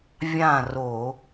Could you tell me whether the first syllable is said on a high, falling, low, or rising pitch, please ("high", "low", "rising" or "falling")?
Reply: falling